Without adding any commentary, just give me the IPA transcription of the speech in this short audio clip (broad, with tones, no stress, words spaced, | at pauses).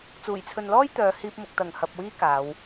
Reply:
t͡suː˨˩jt͡sʰɵ˨nlɔː˥j t̪œː˨˧hiː˧p̚mʊ˨k̚ t̪ɐ˨˩ŋ hɐ˨p̚wiː˥ kaː˨˧w